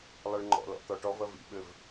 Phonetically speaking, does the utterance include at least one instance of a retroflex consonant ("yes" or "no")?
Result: yes